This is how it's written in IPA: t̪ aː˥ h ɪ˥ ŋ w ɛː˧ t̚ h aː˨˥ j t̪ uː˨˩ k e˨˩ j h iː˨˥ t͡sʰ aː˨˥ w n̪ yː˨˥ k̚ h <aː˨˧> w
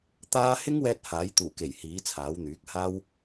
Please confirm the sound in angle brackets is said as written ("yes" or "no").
no